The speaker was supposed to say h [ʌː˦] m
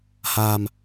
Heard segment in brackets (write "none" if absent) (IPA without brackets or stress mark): aː˦